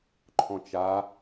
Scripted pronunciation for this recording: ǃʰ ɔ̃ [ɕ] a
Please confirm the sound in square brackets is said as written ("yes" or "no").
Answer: no